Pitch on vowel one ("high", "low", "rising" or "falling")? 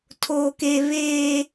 high